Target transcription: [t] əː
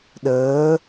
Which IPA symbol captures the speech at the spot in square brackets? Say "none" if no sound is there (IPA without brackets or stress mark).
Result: ɗ